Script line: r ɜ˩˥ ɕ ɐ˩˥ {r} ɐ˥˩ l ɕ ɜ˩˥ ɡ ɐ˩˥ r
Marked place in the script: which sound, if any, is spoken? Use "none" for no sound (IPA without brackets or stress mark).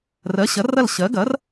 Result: r